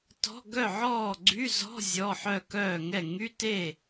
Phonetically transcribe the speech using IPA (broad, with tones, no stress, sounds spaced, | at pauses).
t ɔ̤˧˥˧ ɡ œ˥˨ ʕ ɔː˥˨ ɡ͡ǀ y˧˥˧ z ɔ̤˧˥˧ zʲ ɔ˧˥˧ ħ œ˥˨ k œː˥˨ ŋ ɛ˥˨ ŋ y˧˥˧ t e˥˨